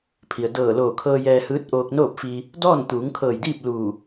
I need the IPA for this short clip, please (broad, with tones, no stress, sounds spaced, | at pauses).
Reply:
pʰ i˩ ə̯ d ɤː˧˩ l oː˧˩ kʰ ɤː˧ j ɛː˧ h ɯː˧˥ t̚ ʔ oː˧ k̚ n oː˥˨ p̚ f i˧ | d ɔː˥˨ n t̪ uː˩˧ ŋ kʰ ɤː˧˩ j d iː˥˨ p̚ l u˧˩